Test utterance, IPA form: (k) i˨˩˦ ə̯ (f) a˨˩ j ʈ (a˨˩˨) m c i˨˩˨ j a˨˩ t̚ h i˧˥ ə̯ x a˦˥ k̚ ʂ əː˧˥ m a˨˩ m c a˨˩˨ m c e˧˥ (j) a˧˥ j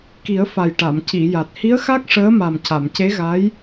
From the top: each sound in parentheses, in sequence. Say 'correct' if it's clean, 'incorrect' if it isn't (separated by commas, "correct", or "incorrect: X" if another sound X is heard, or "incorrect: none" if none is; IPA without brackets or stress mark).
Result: correct, correct, correct, incorrect: ɣ